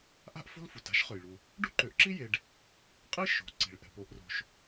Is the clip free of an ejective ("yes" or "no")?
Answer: no